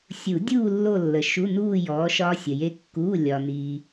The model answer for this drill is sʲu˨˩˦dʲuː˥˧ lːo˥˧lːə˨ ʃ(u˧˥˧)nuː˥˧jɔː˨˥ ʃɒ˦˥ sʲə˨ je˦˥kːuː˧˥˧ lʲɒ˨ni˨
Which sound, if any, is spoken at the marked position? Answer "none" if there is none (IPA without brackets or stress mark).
u˧˥˧